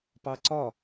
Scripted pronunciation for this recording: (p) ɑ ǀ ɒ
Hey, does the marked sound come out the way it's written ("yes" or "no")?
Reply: yes